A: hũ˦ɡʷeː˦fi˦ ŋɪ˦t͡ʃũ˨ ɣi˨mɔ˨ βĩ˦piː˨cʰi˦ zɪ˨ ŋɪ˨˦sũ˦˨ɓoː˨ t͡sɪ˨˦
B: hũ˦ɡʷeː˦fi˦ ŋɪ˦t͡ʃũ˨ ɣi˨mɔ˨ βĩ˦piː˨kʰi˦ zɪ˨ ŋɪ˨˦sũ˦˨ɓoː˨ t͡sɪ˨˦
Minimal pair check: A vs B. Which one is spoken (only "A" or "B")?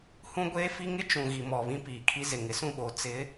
B